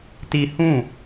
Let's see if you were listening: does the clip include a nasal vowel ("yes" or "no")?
yes